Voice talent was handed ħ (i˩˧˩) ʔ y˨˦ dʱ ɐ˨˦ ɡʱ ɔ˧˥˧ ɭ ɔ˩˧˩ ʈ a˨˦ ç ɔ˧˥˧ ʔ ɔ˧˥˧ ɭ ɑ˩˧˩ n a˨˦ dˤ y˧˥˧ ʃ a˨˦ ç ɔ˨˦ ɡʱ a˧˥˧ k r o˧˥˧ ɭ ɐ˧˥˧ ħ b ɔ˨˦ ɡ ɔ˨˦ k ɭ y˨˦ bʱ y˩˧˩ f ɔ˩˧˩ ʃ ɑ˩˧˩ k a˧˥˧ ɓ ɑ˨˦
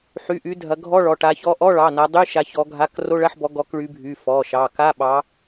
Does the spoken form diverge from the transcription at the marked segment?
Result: yes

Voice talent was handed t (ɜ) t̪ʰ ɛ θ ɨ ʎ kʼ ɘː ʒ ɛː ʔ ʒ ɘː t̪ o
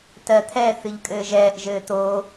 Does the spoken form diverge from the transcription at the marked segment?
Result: no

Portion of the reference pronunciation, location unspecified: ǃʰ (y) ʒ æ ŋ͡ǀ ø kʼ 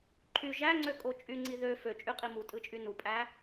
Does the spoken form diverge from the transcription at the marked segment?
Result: no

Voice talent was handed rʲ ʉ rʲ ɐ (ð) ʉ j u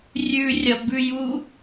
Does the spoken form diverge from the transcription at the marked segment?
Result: yes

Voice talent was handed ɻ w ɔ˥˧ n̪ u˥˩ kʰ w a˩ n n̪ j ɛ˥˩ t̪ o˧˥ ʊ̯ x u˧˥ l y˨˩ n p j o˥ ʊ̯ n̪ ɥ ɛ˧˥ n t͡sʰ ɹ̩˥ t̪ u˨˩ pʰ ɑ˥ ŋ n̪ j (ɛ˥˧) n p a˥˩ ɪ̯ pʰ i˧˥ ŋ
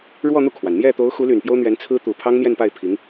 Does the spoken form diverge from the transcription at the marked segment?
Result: no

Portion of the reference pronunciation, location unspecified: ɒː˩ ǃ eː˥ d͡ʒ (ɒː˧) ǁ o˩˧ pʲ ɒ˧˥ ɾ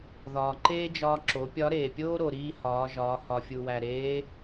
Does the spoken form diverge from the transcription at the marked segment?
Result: no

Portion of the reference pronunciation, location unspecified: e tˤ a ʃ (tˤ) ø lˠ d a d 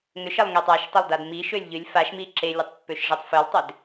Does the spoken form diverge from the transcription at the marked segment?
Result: no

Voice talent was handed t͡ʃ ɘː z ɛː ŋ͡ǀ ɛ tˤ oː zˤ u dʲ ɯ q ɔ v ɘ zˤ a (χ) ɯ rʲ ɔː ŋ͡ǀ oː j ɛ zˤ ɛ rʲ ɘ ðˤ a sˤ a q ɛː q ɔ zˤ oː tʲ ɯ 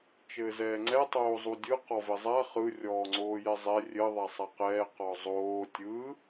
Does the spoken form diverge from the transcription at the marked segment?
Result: no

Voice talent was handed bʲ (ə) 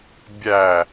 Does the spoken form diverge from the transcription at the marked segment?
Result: yes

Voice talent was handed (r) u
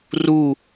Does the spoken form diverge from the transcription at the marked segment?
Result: no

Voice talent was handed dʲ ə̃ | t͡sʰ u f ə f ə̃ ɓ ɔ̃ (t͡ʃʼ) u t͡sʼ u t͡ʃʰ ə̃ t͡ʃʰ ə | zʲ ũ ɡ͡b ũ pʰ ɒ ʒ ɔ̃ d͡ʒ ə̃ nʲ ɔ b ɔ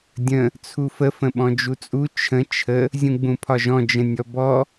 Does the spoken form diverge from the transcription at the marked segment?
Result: yes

